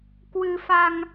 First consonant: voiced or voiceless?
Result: voiceless